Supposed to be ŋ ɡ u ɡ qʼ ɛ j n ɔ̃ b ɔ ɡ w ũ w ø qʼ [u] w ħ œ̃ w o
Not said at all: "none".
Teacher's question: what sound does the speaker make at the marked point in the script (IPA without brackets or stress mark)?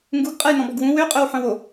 ø